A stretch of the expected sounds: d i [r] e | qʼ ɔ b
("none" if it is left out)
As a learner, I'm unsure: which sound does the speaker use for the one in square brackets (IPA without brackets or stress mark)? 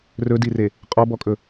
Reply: r